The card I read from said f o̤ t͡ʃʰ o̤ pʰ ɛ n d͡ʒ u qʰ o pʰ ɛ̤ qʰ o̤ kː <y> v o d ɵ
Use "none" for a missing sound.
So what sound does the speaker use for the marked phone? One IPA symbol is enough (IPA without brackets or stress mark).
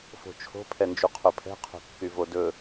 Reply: y